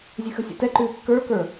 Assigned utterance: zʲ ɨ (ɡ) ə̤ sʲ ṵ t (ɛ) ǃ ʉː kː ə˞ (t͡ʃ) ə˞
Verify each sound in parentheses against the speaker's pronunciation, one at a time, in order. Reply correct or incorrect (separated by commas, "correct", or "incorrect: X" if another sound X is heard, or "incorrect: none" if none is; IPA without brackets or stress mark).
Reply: incorrect: x, correct, incorrect: k